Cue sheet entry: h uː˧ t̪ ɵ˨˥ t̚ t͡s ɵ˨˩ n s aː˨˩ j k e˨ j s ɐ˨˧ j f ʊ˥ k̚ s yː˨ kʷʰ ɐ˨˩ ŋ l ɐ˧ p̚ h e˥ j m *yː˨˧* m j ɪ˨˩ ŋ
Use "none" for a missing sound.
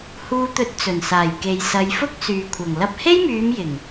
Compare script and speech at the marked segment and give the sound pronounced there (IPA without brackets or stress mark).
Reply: yː˨˧